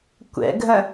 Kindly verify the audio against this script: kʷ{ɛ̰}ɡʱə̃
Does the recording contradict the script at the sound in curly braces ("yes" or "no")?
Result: no